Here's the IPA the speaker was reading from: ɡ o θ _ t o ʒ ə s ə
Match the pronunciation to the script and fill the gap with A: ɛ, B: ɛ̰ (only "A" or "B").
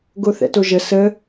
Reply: B